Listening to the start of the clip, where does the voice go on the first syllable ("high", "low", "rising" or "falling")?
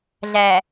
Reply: low